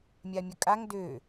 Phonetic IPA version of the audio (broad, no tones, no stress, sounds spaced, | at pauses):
mʲ a mʲ ɵ kʼ a ŋ d ø